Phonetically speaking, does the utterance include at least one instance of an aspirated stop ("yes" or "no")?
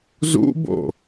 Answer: no